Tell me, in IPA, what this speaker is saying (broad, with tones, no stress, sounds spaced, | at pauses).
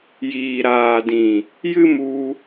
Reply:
j iː˨ ɾ aː˨ d ĩ˨ | j ɨ˦ m u˧